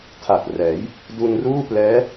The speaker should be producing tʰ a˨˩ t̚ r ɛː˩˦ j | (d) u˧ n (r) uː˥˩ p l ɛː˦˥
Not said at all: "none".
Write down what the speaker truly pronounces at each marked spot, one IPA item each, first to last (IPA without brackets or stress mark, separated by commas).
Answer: d, r